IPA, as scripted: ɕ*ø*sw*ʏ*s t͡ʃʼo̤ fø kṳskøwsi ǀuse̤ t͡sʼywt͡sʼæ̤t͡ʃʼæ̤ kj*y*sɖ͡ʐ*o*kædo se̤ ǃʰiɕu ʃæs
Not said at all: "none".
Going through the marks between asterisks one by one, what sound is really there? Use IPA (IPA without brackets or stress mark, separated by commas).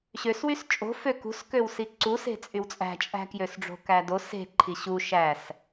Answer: ø, y, ø, o̤